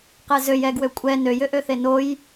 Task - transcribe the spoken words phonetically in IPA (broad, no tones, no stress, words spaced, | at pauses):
qɛzøj ɛɡwøkʷʼɛ nøjʏʔøθe noj